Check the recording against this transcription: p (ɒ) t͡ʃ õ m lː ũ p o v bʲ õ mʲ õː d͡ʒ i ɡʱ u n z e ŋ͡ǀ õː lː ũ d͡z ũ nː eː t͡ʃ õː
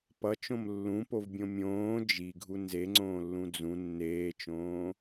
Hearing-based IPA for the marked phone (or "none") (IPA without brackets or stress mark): ʌ